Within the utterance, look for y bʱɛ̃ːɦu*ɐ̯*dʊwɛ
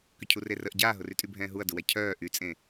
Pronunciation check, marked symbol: correct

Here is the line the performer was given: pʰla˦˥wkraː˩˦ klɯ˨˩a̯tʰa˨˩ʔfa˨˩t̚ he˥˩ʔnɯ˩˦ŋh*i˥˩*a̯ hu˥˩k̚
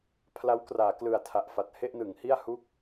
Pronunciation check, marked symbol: correct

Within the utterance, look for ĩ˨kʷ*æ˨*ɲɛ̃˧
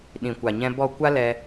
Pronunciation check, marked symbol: incorrect: a˨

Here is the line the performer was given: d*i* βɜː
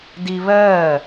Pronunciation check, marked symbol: correct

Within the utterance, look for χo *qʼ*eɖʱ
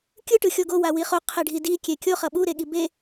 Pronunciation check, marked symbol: incorrect: qʰ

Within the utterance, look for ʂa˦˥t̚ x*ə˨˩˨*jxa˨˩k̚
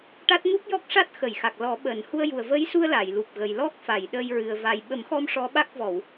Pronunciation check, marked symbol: correct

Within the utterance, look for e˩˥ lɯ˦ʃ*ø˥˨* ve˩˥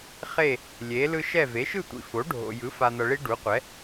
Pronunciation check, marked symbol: incorrect: ɛ˥˨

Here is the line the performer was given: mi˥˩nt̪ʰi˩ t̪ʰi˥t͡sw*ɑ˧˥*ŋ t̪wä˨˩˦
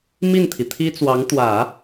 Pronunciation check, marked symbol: correct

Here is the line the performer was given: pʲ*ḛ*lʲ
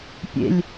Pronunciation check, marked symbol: correct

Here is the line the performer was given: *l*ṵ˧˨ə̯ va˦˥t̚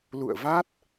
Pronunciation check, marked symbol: correct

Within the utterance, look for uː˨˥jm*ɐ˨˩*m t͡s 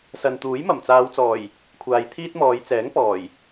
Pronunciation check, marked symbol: correct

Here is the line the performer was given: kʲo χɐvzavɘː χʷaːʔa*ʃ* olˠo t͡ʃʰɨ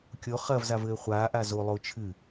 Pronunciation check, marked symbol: incorrect: z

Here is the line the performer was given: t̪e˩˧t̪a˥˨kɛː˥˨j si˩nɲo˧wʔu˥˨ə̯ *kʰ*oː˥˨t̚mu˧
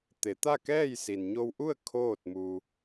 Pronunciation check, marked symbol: correct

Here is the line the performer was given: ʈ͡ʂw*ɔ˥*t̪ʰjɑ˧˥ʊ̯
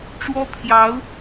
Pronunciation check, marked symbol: correct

